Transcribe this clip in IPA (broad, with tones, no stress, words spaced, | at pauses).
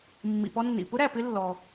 mːḭ˩pɔ˧nːḭ˩ pʊ˥ɾæ˩ pɪ˧lːɔ˩